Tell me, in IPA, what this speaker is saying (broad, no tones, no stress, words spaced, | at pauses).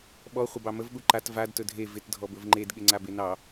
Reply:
ɓɔ χʷɪbɑməv ɠuǃat vad tɵdʱe vɪt dʱɔbɵvŋ͡ǃed ɠɪŋ͡ǀabenɑ